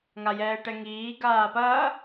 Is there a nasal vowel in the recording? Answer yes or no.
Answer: no